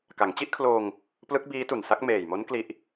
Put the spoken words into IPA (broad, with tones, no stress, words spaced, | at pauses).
ka˩˦ŋt͡ɕi˦˥ʔkʰloː˧ŋ | plɯ˦˥k̚biː˦˥tu˨˩nsa˦˥k̚ meː˨˩jmo˦˥n kli˦˥ʔ